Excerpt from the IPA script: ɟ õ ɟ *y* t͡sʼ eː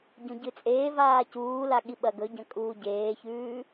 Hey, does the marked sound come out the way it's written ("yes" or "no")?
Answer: no